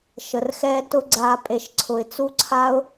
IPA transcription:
ʃə˨rxɛː˦ tʊ˦ɡ͡ǀaː˧ pʼe˧ʃǀʰʊ˨ɪ̯ t͡su˦ǀʰa˦ʊ̯

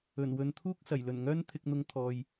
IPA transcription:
ɵ˨˩nwɵ˨nt̪ʰuː˥k̚ sɐ˨˩jlɵ˨˩nŋœː˥n t̪ʰɪ˨k̚n̪ʊ˨˧ŋ t̪ʰɔː˨j

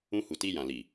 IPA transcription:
ũ˧hu˨ti˧jã˨ li˨

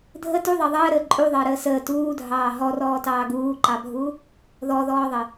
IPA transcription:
dʱə tuðˤɑ ðˤəːɾəː ǃʼuðˤəːɾəː səː tuːdʱɑː ɦɔrɔːtɑː ɡuːǃɑbʱu | ðɔðɔːðˤə

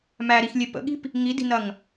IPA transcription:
mæɾixlʲe pə̰ɠi̤p | ŋidi̤nɐŋ

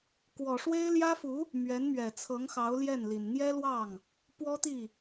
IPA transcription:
kwɔ˨˩ʂwe˥ɪ̯ljä˥fu˧˥ | mɥɛ˧˥nmɥɛ˨˩t͡sʰɤ˧˥ŋ xɑ˧˥ʊ̯ljɛ˥˩nli˨˩n n̪jɛ˥lwɑ˥˩ŋ | pwɔ˥t̪i˥˩

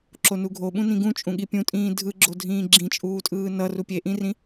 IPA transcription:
ǁonuɡʱo ɓũnĩɡũt͡ʃʼũ ɠipʲũtʼĩː dʱɯɡ͡ǁo dʱĩːɡ͡ǁĩt͡ʃʼuːtʼɯː nʌru pʲeʔĩrĩ

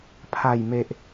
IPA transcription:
pʰa˨˩jme˨ʔ

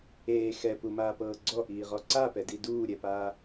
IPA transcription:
eː xɛpumaːpɤː ɡ͡ǀɔʔiːʁɔ ǀapɛdi duːɾʲɛpaː

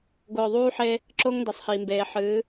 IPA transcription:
ɡʊː˨ðˤuː˦ħe˦ | ǁʊː˦ŋndɛ˨sˤhiː˨mbeː˨ ħɨː˨˦

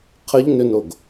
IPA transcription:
qʰəʎnʏnoɡ

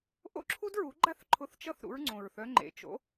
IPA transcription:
ʔo̰˥ǁʰu˥dɹu˩˥ ɡ͡ǃa˥θ ǃʰʊ˧˥θt͡ʃʌ˥˩θ ɾṵ˧˥ɹŋ͡ǀõ˨˩ɹθœ˧˥ŋ͡ǃḛ˩˥ t͡ʃo̰˩˥

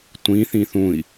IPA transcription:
tʷĩ θĩθũi̯

